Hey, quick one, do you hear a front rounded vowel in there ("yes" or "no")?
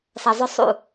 yes